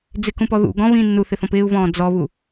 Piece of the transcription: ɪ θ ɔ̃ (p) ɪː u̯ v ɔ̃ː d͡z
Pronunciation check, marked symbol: correct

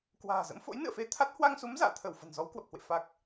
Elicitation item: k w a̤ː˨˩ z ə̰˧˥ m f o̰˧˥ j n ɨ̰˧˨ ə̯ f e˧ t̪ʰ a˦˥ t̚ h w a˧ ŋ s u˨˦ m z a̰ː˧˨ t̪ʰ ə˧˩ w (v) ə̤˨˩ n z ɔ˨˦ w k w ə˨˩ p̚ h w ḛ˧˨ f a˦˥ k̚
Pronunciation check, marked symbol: incorrect: f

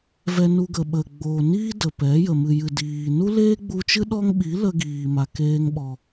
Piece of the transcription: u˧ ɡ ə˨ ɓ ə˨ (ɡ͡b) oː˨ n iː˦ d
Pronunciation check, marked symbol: correct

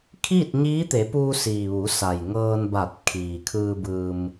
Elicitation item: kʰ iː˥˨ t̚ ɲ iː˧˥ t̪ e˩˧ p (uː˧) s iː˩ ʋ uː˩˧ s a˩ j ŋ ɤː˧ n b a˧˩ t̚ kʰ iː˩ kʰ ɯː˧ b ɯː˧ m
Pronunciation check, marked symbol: correct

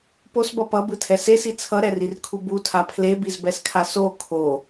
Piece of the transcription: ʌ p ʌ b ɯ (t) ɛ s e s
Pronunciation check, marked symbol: incorrect: tʰ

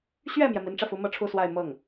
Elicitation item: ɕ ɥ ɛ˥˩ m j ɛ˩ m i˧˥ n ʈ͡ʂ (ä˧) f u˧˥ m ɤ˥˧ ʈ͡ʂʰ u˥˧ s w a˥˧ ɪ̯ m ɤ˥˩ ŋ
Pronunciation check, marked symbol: correct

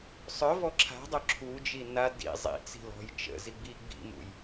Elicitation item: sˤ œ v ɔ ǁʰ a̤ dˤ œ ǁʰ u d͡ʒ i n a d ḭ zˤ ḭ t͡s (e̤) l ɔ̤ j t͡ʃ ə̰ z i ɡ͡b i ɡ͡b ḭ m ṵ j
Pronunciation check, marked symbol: incorrect: i̤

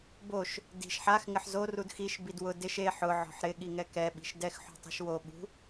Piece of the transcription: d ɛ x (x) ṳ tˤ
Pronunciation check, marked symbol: incorrect: ħ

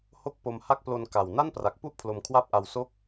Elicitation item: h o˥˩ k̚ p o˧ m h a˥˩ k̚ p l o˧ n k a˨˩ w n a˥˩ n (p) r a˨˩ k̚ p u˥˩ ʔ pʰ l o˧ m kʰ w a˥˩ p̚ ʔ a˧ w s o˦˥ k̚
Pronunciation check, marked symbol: correct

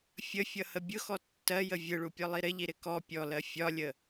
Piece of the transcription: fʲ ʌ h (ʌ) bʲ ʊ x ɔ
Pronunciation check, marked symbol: incorrect: ə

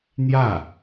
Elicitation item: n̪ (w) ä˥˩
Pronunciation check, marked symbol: incorrect: j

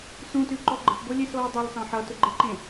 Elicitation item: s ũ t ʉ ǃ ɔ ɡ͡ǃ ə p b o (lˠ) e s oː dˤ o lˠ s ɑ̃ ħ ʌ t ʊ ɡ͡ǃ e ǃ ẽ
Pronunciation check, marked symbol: incorrect: lʲ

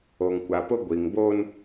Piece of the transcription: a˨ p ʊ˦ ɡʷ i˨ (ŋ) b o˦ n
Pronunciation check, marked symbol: correct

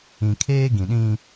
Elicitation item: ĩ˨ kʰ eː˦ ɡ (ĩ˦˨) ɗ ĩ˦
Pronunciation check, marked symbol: incorrect: ĩ˨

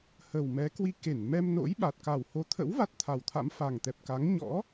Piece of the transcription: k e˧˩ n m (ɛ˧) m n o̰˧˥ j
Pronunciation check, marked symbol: correct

